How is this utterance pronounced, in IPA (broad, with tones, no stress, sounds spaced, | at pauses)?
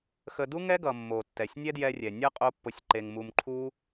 x ə˧ d u˦ ŋ ɛ˦ ɡ ʌ˨ mː o˨ tː ɛ˨ sʲ nʲ ɛ˦ d j ɛ˧ rʲ ɛ˨ nʲ ʌ˦ qʼ o˦ pː o˧ sʲ ǃ e˧ ŋ m u˧ m ǃʰ u˦